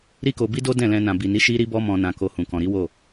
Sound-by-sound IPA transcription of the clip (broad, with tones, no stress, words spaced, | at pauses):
ɾi˦ko˧bi˦do˦ dɛ̃˦˨lɛ̃˧ nã˨ bi˨ni˨˦ ʃi˦ɾi˦ bɔ˧mɔ̃˨nã˨ko˨ hũ˨kɔ̃˨ɾi˨˦wo˦˨